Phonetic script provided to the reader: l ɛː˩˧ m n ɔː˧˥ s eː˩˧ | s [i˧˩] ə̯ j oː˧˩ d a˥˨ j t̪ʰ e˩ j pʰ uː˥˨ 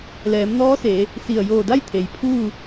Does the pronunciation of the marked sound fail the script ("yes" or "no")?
no